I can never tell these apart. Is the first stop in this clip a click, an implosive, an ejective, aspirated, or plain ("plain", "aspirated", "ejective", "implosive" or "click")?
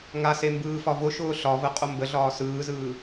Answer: plain